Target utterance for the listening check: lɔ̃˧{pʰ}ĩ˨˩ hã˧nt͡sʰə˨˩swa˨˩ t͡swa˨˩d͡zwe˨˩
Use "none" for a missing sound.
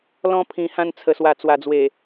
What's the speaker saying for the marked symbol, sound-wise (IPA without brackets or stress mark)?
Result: pʰ